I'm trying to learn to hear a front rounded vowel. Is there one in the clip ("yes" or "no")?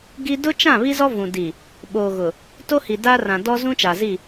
no